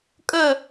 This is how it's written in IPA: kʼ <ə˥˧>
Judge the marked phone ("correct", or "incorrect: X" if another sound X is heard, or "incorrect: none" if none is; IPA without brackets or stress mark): correct